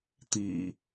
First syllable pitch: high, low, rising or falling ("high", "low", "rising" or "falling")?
low